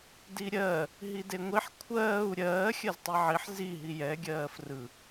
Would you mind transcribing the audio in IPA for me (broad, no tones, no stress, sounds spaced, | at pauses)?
d i ɾʲ ɜ | ɦ i d e ŋʷ i ħ kʷʰ ɜː u̯ ɾʲ ɜː xʲ ɜ z tˤ i ʕ i ħ z i ɦ i j ɛ ɡʲ ɜː f r ɯ